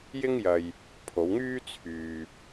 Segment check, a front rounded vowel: present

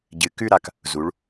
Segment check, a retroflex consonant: present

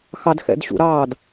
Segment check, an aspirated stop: absent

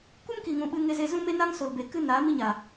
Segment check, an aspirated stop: absent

